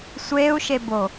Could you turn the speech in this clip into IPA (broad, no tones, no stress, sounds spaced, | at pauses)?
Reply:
sʷ eː u̯ ʃ e b o